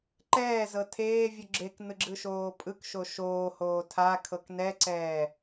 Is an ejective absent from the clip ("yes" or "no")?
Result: no